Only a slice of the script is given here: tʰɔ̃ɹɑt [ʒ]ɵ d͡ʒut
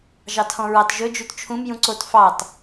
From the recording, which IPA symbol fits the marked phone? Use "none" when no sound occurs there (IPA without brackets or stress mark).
ʒ